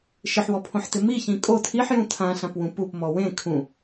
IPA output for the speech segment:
ʃ ɪ ħ w ɔ pʰ õ ħ t ɪ m i ç ĩ kʼ o tʰ i ħ j ũ tʰ ã ɬ ã p w ũ p u p m ɔ w ẽ kʰ ũ

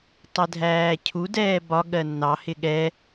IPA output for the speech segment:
tˤ ɛ dʱ æː cʰ u d ɛː b ɒ ɠ ɜ nː ɑ h ɪ ɠ ɛ

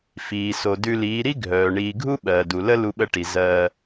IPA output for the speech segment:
f iː˨ s o˨ d ʉ˧ l iː˨˦ ɾ i˦ ɡʱ œː˨ ɳ iː˨ ɡʱ u˦ ɓ ɜː˨ d u˨ l ə˦ l u˧ ɓ ə˧ ʈ i˨ z ɜː˧

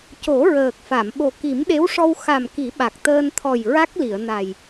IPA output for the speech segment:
c o˨˩˦ ɹ əː˨˩ k̚ f a˨˩˨ m ɓ o˨˩ k i˨˩˦ m ɗ e˧˥ w ʂ ɔ˧ w x a˨˩ m k i˨˩˦ ɓ a˨˩ k̚ t̪ əː˧ n t̪ʰ ɔ˨˩ j ɹ a˦˥ k̚ l i˨˩˨ ə̯ n a˨˩ j

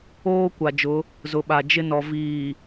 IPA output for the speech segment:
oː˦ kʷ a˨ d͡ʒ ʊ˨˦ | z ʊ˨ ɓ a˨ d͡ʒ ɪ˦ n ɔ˨ v iː˨

